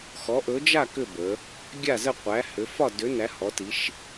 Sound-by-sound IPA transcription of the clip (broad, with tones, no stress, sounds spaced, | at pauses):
x ɔ˨˦ ʔ ɵ˨˦ d͡ʒ a˥˧ k ʏ˥˧ b ə˨˦ | ɡʲ a˥˧ z ə˥˧ qʷ æ˨˦ h ʏ˨˦ f ɒ˥˧ d ʏ˨˦ n æ˨˦ h ɔ˨˦ t i˨˦ ʃ